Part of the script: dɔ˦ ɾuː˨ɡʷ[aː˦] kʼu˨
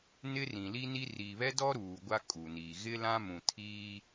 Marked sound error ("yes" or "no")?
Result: yes